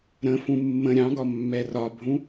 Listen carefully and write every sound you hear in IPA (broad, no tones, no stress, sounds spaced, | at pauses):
ɾ ə̃ f ũ mː ə̃ ɾʲ ɑ̃ ɡ ɒ mː ɛ r ɒ bʱ ũ